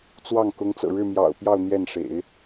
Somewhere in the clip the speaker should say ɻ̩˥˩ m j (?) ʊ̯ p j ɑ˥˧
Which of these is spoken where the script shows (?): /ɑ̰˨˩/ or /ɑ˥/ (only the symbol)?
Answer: ɑ̰˨˩